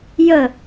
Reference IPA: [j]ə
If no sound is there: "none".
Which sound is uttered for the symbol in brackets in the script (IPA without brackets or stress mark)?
j